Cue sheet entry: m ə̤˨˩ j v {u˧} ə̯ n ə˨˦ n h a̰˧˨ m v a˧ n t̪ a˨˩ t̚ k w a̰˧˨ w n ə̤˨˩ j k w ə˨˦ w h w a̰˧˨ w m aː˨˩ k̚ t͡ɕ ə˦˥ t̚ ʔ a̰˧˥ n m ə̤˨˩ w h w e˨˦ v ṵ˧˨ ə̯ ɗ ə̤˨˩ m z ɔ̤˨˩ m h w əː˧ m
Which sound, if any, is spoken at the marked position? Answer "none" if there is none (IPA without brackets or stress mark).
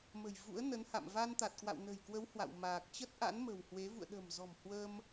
ṵ˧˥